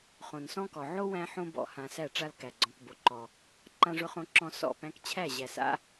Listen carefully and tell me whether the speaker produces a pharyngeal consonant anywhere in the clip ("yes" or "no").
yes